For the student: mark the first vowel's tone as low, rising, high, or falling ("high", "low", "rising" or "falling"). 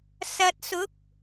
low